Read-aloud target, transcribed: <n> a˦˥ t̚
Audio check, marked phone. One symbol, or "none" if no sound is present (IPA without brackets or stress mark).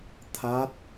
t̪ʰ